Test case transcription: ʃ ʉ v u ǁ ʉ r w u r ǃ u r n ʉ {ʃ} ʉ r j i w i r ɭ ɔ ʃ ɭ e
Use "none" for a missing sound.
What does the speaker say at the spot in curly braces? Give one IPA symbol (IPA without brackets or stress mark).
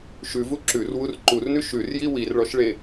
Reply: ʃ